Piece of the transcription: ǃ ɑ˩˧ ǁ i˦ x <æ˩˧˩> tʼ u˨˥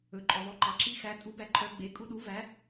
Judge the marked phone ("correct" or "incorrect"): incorrect